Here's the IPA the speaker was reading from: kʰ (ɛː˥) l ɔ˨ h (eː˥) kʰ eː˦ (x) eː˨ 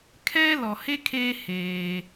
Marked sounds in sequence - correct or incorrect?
correct, incorrect: e˥, incorrect: h

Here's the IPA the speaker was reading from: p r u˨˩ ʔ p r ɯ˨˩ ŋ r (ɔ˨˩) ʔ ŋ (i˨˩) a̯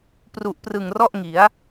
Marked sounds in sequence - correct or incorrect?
incorrect: ɔ˥˩, incorrect: i˩˦

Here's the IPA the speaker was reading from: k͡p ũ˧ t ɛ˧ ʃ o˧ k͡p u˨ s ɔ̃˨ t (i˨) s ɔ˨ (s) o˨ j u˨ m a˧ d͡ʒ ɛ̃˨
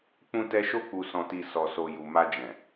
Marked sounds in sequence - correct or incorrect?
correct, correct

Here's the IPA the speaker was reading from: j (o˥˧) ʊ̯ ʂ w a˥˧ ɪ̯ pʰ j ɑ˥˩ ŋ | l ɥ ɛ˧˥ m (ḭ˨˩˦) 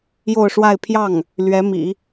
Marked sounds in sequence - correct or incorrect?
correct, correct

